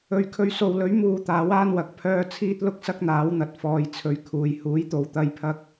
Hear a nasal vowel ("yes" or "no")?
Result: no